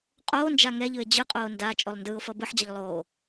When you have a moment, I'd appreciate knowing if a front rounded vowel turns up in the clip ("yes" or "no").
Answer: no